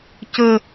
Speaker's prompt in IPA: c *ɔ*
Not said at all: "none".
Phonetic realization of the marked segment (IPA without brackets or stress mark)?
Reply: ə